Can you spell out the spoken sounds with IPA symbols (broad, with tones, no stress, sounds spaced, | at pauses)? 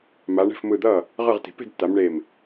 m a˩˧ ɳ ɛ̤˧˩ f m ɯ˧˩ d̪ ʌː˥˩ | ʁ ɯ˧˩ ʁ t i̤˩ p e̤˥˩ d tː a˩˧ m ɳ e˧˩ m